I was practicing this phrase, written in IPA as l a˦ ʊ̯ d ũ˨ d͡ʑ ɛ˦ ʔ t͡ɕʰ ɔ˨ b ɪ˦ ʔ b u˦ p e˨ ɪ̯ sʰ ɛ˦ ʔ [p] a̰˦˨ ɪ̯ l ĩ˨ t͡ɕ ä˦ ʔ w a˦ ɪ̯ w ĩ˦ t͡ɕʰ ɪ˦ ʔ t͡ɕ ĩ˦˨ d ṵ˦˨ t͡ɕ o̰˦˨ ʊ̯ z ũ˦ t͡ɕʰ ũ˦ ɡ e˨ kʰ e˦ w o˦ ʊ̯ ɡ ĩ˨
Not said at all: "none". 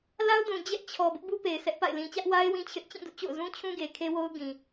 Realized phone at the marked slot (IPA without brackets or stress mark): p